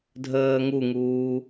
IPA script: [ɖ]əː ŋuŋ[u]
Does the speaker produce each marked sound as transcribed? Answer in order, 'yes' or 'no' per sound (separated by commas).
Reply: no, no